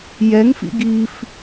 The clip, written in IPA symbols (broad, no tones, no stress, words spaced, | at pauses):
jɛŋfḭ ɡif